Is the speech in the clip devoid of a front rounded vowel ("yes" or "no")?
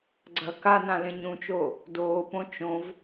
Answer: yes